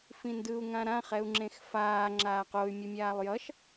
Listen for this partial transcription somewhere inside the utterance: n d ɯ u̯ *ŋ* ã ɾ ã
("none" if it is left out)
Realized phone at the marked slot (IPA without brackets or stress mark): ŋ